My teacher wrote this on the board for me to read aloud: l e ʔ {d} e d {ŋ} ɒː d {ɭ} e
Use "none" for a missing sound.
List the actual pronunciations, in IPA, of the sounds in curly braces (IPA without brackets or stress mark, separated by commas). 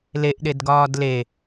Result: ɗ, ɡ, l